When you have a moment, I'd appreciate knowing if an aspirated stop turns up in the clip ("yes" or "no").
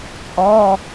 no